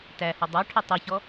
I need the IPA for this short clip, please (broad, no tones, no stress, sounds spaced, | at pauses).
t æ h ʊ dˤ ɑ ʈʰ ə tˤ ʊ ç ɔ